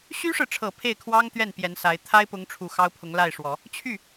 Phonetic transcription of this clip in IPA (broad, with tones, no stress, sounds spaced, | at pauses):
ɕ y˥ ʂ ɻ̩˨ ʈ͡ʂʰ ɤ˨˩ pʰ e˥˩ ɪ̯ kʰ w ɑ˥ ŋ t̪ ɥ ɛ˥˩ n p j ɛ˧˥ n s a˧˥ ɪ̯ t̪ʰ a˥ ɪ̯ p ʊ˧˥ ŋ ʈ͡ʂʰ u˨˩ x ɑ˥ ʊ̯ pʰ ʊ˧˥ ŋ l a˥˩ ɪ̯ ʂ w ɔ˨˩˦ | t͡ɕʰ y˥˩